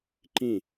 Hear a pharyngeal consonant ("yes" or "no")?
no